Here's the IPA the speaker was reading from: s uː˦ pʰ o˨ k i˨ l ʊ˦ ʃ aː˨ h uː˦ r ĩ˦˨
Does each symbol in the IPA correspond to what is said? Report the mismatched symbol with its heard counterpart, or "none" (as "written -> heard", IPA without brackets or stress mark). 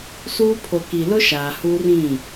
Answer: none